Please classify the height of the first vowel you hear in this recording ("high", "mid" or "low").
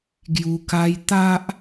high